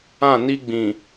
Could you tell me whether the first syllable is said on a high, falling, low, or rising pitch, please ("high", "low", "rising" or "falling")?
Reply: falling